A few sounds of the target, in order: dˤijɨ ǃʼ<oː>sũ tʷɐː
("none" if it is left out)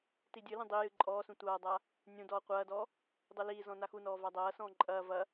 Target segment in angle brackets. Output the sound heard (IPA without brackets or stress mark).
ɔː